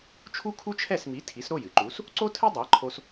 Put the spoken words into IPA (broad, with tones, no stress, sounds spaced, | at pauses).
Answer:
t͡ʃʰ u˥ kʰ u˥ t͡ʃʰ ɛ˥˩ s m i˩˥ tʰ i˩˥ s ɾ o˥˩ j ɨ˩ ǃ u˩˥ s | ǀ o˥ tʰ ɨ˥ dˤ a˩˥ ǃʰ o˧ s